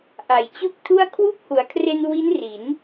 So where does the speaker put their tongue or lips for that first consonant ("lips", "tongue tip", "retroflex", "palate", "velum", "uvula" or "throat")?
throat